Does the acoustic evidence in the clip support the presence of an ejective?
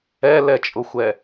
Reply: yes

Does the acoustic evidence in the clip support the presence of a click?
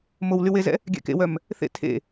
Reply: no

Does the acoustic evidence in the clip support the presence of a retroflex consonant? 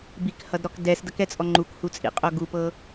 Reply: no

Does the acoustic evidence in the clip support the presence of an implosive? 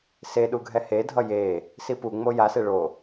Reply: yes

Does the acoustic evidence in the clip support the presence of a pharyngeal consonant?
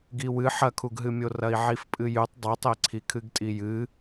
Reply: yes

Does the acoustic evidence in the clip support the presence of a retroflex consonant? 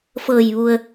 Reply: no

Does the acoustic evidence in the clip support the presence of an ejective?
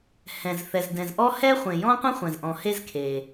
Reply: no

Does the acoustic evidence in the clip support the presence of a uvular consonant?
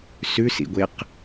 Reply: yes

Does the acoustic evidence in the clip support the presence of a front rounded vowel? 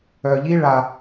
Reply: yes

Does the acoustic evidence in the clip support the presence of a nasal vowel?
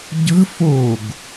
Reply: no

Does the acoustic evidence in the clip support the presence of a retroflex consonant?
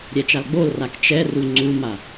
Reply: no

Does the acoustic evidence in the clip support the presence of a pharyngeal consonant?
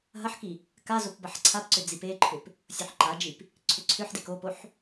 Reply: yes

